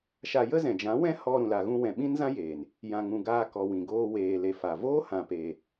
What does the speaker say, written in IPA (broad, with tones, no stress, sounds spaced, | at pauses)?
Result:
ʃ a˧ j ə˦ z ɛ̃˨ d͡ʒ ã˨˦ w ɛ̃˦ h ɔ˧ ɾ ũ˨ l a˨ ɣ ũ˧ w ɛ̃˨ ɓ ĩ˦ n z ã˦ j eː˨ n | j ã˧ ŋ ũ˧ ɡ aː˦ k ɔ˨ w ĩ˨ ɡ oː˧ w eː˨ l e˨ f a˨ v oː˦ h ã˨ p eː˨